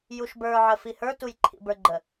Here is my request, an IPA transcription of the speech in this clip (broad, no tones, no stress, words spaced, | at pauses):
juʃbə˞ ʕəfihə˞ tujǃʰḭbə˞ɡ͡ǃə